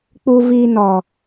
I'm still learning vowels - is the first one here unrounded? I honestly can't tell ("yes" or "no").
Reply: no